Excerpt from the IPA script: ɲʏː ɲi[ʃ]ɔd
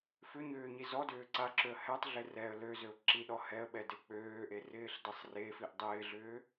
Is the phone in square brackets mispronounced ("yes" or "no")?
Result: yes